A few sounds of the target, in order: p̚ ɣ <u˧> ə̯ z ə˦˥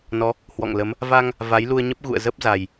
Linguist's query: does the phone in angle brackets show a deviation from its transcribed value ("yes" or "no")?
yes